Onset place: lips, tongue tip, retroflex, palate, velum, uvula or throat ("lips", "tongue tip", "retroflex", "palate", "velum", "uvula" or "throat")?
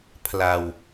lips